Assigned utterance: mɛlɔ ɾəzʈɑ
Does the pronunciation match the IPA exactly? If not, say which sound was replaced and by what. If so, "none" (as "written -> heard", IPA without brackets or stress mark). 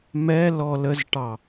ɾ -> l